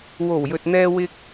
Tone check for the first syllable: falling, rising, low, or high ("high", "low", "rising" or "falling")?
low